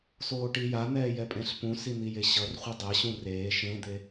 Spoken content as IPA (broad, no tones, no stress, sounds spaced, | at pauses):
s oː ʈ i j a n̪ ɛː j ɛ pʼ ẽ ɬ p ũ s i n̪ i j e ɕ ʌ r χʷ ɯ dˤ ɛ ɕ ũ r eː ʃ ẽ d̪ e